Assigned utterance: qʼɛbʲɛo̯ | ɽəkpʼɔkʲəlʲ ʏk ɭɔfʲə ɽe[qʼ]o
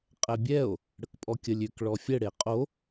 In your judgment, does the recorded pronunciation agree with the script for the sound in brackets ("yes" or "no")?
yes